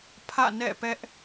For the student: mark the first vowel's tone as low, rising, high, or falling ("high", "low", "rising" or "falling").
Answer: falling